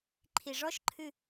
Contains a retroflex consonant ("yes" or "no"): yes